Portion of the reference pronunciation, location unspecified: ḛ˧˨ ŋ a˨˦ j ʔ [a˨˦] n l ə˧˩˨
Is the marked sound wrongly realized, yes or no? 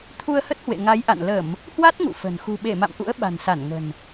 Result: yes